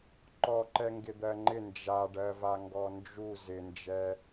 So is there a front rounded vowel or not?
no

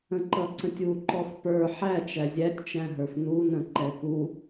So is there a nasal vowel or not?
yes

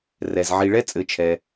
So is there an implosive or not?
no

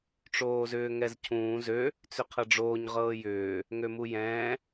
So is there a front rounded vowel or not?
yes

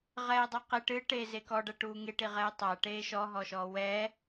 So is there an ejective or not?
no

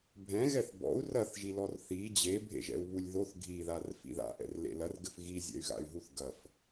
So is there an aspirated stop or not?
no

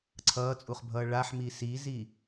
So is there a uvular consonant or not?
yes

